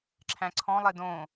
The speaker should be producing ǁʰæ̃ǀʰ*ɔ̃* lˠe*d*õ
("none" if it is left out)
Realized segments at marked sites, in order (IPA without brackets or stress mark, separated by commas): ɔ̃, d